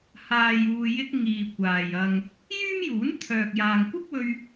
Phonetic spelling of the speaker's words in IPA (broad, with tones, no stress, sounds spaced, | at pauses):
h aː˨ j uː˨ j ɪ˧ k̚ ŋ iː˨ kʷ aː˨ j ɐ˨ ŋ | j yː˥ m j uː˨˥ n t̪ʰ œː˨ k̚ j aː˨ ŋ kʷ ɪ˥ k̚ w ɵ˧ ɥ